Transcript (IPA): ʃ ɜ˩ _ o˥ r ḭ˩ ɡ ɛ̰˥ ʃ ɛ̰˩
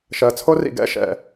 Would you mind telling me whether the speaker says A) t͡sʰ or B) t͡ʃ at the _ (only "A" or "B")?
A